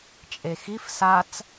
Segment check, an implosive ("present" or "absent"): absent